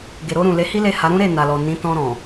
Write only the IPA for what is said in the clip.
ɡ e˨ ɾ o˧ ɾ ũ˨ l e˨˦ h i˦ l e˦˨ h a˨˦ ɾ ũ˦ ɾ e˦˨ n a˨ l ɔ˨ n ĩ˨˦ t ɔ̃˧ ɾ ɔ̃˨

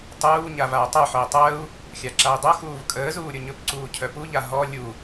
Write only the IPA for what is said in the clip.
tˤ uː ɲ a v a u̯ tˤ ɵ ħ œ i̯ tˤ əː u̯ | xʲ a ǁ a i̯ dˤ o x uː v kʼ əː z uː ɾʲ o ɲ ɵ p ǀ uː cʰ œ p u ʎ a ɦ ɔ lʲ u

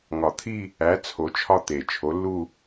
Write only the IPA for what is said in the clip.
ŋ ɒ˨˩ t̪ʰ i˥˧ | æ˨˦ t͡sʰ o˨˦ t͡ʃʰ ɒ˥˧ t̪ e˨˩ t͡ʃʰ o˨˦ lː u˥˧

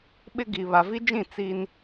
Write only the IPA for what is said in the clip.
ɓ ɪ˦ ɡ i˨ β a˨ v i˦ d͡ʒ ĩ˦˨ t͡s iː˦ n

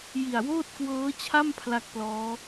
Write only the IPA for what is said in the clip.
j i˨˩ a̯ w oː˥˩ t̚ k w ɤː˦˥ t͡ɕʰ a˥˩ m pʰ l a˥˩ k̚ p l ɔː˦˥

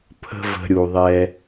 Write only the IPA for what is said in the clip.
pʰ ə̤˦ v ə̤˧ ɾʲ u˨ ðˤ ɛ˧

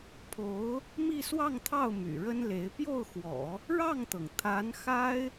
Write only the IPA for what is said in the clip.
pʰ o˧˥ ʊ̯ | m i˥˧ s w ɑ˥˧ ŋ t̪ʰ ɑ˥˩ ʊ̯ m y̰˨˩ ɻ ə˥ n l e˧˥ ɪ̯ p j o˥˩ ʊ̯ x w ɔ̰˨˩˦ | ɻ ɑ˥˩ ŋ t̪ ɤ˩ ŋ t̪ʰ a˧˥ n x a˥ ɪ̯

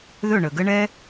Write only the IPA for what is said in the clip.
ð ɵ˦˨ ɳ ə˨ ɡ ə˦ ɳ ɛ˦

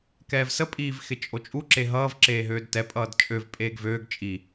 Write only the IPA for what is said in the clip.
k ɛː v s ə pʼ iː v x ɪ t͡ʃʼ o t͡ʃʼ u ǁ e ɦ ʌː v ǁ eː ɦ øː d t ɛ pʼ ʌː d t͡ʃʼ ø v pʼ eː ɡ v øː ɡ t͡ʃʼ i

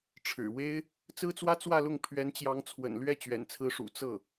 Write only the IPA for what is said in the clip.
ʈ͡ʂʰ ɻ̩˨˩ w e˥ ɪ̯ | t͡s ɹ̩˥ t͡s w ä˥ t͡s w ä˥˧ l ʊ˥˩ ŋ pʰ ɥ ɛ˧˥ n t͡ɕ j ɑ˧˥ ŋ t͡sʰ w ə̰˨˩ n l ɥ ɛ˥˩ t͡ɕ ɥ ɛ̰˨˩ n t͡sʰ ɹ̩˧˥ ʂ ṵ˨˩ t͡s ɤ˥˩

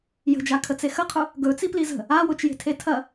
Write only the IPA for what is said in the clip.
j ə̤ d͡ʒ a kʰ ə t͡s e x ə qʰ ʊ | ɡ ɵ t͡s i p l i z ə̤ | a w ʊ t͡ʃ j e̤ tʰ e tʰ ɐ

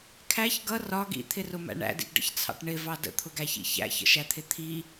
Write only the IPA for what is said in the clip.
kʰ æ ç ɡ ʌ r ɒ ɡ ḭ t̪ʰ ɪ r ʊ m æ̰ ɳ æ̰ d ḭ ɡ ɖ ə̰ ç t͡sʰ ɑ̰ ʈ ɳ ɪ v ɑ d ə̰ t̪ʰ ʊ ɡ æ ç ḭ ç æ̰ ç ə̰ ʃ æ t̪ʰ ɪ t̪ʰ i

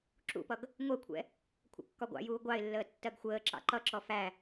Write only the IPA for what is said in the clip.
ǁ ṵ p ʌ ɡ | ŋʷ ɜ kʷʰ ɛ̰ | kʷʰ ə̰ kː ɒ ɡʷ ɑ̰ j uː ɡʷ ɑ ɪ̯ lː əː tː ɜ ɡ xʷ əː ǁ ɑ̰ ǃ ʌ ǁ ɔ f æ

